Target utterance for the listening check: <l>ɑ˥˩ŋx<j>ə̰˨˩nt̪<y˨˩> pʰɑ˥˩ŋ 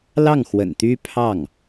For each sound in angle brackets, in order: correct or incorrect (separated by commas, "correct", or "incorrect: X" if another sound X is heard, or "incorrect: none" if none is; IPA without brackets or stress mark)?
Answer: correct, incorrect: w, incorrect: y˥